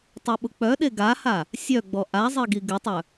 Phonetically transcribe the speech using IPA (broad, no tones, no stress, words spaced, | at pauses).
tˤœɓʊk͡pœɗe ɡaha | sʲœɡ͡bɔ ʔazˤi ɡiɡɪtˤœ